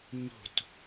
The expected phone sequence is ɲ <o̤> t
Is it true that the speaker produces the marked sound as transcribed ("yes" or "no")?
yes